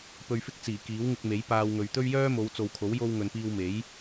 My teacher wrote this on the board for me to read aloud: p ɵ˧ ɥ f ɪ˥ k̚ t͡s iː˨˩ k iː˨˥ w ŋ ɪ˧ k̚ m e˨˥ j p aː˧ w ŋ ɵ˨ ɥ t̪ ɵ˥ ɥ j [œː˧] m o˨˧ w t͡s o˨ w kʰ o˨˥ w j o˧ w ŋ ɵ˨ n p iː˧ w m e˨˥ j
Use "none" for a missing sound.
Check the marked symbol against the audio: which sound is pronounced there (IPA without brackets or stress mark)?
œː˥